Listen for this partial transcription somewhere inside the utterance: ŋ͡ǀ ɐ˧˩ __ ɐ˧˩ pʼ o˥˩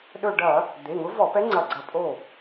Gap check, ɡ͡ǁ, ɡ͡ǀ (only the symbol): ɡ͡ǀ